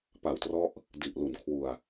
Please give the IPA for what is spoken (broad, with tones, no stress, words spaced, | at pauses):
pa˨˩wtrɔ˦˥ʔ | di˨˩ʔ lu˨˩nkʰwu˧a̯